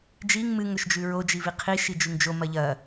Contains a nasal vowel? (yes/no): no